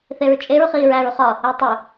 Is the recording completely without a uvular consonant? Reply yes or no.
no